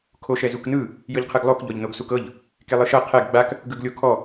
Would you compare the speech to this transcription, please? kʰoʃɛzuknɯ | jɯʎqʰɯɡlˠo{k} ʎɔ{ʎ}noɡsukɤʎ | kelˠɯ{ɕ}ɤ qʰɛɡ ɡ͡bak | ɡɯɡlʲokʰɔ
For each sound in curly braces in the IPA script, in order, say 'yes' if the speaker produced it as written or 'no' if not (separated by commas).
yes, yes, no